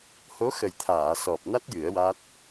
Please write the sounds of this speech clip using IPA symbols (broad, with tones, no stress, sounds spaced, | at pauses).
h o˧˥ x ə˨˩ j t̪ʰ aː˨˩˨ s ɔ˨˩ p̚ n a˦˥ t̚ j ɨ˨˩˦ ə̯ w a˦˥ t̚